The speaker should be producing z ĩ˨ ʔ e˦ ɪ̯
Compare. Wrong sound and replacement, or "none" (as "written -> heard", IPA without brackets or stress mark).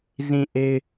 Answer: none